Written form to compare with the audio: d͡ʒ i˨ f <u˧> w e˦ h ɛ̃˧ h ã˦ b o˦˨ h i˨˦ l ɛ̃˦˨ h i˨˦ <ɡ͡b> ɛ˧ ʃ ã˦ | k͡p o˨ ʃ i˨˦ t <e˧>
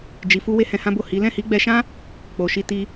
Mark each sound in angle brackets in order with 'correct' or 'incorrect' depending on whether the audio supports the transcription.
correct, correct, incorrect: i˧

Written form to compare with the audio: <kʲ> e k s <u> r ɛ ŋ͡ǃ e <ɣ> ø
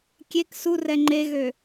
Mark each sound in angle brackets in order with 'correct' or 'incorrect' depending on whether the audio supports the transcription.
correct, correct, correct

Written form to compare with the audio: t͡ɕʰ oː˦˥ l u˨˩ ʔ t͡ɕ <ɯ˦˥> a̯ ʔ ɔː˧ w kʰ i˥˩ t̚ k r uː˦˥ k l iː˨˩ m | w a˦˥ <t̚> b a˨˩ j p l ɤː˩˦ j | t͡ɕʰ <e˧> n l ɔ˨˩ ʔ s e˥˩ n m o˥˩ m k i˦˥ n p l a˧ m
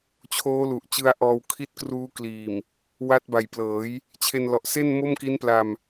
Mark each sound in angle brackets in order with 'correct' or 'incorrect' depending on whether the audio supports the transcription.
correct, correct, correct

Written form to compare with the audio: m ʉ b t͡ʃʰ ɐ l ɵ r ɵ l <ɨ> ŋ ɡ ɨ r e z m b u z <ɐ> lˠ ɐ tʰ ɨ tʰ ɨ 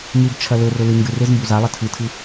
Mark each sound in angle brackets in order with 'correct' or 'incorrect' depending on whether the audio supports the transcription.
correct, incorrect: a

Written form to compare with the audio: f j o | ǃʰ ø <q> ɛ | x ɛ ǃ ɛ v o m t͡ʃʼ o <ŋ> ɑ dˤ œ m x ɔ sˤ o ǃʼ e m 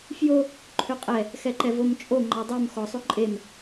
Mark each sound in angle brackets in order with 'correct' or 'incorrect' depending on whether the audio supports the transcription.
incorrect: qʼ, incorrect: ŋ͡ǃ

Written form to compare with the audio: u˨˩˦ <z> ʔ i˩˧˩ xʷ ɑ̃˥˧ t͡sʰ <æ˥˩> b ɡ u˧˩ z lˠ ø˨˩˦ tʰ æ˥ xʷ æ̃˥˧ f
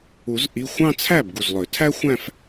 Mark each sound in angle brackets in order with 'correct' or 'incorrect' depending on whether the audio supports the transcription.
correct, correct

